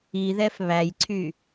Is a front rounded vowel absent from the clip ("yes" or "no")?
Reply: no